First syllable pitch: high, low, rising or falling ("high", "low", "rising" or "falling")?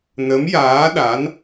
rising